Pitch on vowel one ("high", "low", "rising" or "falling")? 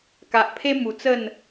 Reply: low